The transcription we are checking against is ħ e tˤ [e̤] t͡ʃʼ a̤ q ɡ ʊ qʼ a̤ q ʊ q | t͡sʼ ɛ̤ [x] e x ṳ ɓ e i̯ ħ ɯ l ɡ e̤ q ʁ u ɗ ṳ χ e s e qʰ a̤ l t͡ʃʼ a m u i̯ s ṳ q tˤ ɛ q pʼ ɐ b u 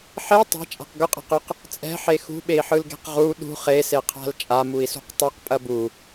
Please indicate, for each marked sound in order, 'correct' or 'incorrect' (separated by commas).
correct, incorrect